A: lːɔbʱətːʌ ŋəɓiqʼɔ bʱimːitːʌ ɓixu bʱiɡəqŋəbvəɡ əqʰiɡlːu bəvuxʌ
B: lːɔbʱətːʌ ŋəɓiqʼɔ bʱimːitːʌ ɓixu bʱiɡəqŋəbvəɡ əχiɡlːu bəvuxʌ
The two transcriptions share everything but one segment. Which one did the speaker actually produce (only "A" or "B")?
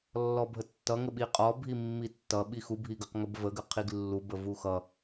A